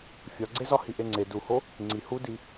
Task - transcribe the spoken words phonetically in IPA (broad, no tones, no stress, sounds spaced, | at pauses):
fʲ ɒ ɡ͡ǀ e z ɒ h i ʔ e ŋ͡ǀ e d u h o | ŋ͡ǀ i h u d i